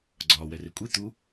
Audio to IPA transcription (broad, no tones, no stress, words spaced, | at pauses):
ɡ͡ǀɒːwɛre kʷʼe t̪u